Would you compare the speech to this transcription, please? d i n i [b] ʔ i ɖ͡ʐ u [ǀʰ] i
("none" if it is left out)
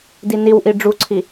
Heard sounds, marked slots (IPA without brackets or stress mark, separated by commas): w, ǀʰ